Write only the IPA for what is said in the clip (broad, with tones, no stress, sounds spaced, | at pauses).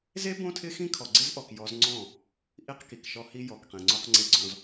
z e˦ b õ˦ tʰ ɪ˦ x ĩ˦ kʰ ɔ˨ ɡ͡ǀ ɪ˦ z ʔ ɔ˨ k j ɔ˦ z ŋ͡ǀ ɔ̃˦˨ | ʔ i˦ q k i˨ k ʃ ɔ˦ h i˦ j ɔ˨ k q ĩ˨ ŋ͡ǀ o˦ q ŋ͡ǀ e˨ ɡ͡ǀ ɔ̃˨ z